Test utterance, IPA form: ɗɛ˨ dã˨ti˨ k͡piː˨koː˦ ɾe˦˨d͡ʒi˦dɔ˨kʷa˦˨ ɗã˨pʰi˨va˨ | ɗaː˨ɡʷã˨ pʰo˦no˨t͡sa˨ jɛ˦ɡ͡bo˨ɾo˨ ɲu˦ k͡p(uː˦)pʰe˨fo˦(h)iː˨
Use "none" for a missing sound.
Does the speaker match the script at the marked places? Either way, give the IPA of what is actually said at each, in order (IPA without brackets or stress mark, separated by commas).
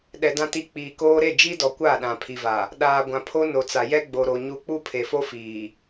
u˦, f